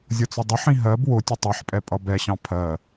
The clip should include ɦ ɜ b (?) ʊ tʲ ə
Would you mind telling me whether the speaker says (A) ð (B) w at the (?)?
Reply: B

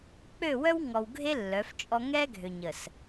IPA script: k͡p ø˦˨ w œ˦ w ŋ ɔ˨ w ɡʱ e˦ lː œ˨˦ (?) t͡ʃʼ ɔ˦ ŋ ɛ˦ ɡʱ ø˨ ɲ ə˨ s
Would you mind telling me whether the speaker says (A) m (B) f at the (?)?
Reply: B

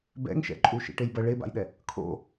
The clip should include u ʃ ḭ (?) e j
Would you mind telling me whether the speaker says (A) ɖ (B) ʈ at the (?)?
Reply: B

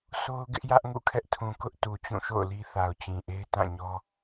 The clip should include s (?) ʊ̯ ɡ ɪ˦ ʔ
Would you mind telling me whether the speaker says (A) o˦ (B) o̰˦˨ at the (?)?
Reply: A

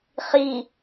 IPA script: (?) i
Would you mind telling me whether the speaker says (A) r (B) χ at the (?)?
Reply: B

